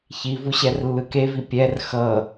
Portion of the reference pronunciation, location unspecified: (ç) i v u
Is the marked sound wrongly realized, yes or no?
no